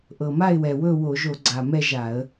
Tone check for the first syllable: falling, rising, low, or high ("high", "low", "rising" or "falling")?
low